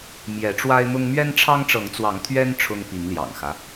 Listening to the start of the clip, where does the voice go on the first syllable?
rising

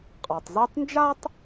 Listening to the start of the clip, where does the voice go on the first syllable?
low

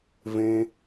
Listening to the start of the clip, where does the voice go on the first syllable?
high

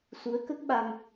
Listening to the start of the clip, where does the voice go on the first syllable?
rising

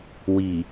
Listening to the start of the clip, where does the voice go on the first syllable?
low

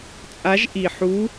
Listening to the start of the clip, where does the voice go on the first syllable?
rising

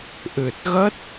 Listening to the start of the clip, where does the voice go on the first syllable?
low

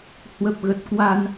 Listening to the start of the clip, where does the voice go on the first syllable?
low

